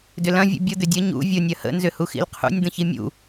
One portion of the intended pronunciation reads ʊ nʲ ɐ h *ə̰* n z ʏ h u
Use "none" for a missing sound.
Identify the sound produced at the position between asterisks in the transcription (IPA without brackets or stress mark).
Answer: ə̰